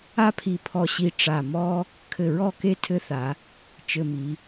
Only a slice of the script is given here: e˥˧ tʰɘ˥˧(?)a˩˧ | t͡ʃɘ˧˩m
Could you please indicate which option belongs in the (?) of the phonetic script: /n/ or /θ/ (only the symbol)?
θ